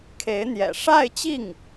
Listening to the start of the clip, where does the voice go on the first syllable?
rising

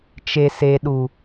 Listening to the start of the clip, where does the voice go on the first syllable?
low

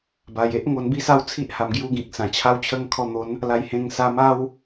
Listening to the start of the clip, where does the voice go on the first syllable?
low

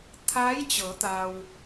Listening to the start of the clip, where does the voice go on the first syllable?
rising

